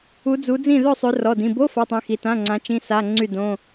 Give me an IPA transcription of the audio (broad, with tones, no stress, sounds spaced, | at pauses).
u˨˦ d͡z u˨˦ d͡z ĩ˥˨ ð œ˥˨ sˤ ø˨˦ r ɔ˩˧˩ d ĩ˩˧˩ b o˧˥˧ f a˧˥˧ tˤ ĩ˨˦ x i˩˧˩ t ã˧˥˧ ŋ͡ǀ ã˨˦ t͡ʃ ĩ˧˥˧ s a˧˥˧ ŋ͡ǀ y˥˨ d õ˧˥˧